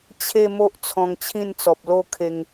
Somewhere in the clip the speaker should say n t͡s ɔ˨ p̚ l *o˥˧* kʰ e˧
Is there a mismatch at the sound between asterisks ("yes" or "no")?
no